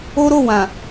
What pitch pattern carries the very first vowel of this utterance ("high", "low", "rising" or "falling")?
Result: high